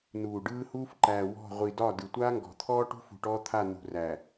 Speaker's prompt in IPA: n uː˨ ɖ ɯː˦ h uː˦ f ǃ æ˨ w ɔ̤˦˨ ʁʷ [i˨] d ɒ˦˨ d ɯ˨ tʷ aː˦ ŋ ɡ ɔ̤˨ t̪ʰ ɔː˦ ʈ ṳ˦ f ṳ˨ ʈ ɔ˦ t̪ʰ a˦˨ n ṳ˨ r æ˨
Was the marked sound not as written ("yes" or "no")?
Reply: no